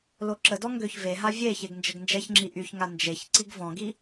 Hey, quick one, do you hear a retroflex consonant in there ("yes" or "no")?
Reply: no